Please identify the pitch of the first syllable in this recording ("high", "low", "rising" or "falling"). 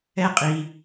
high